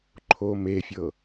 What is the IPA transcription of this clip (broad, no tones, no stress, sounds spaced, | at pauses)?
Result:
ǃʰ o m e fʲ ɤ